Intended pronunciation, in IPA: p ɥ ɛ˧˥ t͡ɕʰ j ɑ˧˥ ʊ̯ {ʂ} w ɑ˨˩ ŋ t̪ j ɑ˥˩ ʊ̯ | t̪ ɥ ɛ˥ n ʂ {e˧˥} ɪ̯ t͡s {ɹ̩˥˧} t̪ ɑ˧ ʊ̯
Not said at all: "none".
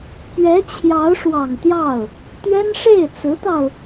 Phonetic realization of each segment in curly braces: ʂ, e˥˩, ɹ̩˧˥

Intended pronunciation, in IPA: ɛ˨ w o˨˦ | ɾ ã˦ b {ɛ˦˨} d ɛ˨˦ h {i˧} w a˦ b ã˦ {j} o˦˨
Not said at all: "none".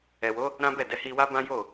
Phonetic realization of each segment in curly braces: ɛ˦˨, i˧, j

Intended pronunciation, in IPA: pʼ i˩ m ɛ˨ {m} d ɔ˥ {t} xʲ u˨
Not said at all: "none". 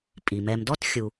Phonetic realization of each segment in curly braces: m, t

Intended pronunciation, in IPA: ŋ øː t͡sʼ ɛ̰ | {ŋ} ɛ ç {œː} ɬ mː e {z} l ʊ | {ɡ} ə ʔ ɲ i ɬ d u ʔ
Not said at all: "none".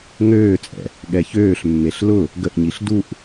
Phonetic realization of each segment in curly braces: ɠ, øː, ɬ, ɡ

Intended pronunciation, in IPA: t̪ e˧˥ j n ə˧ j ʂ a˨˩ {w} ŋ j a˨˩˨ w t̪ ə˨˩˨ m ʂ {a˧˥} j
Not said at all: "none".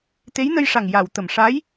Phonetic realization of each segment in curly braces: none, a˧˥

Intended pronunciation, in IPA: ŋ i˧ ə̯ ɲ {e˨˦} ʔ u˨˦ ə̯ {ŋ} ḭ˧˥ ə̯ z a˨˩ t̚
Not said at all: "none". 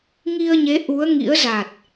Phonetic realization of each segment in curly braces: e˨˦, ŋ

